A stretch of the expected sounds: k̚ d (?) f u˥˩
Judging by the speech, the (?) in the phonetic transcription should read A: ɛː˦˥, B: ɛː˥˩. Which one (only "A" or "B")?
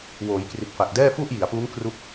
B